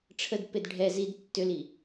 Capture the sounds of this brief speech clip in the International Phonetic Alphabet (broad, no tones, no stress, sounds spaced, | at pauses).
ʈ͡ʂʰ ə d p e d ɖʱ ɛ z i d tː ʏ l i